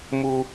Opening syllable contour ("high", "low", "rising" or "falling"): high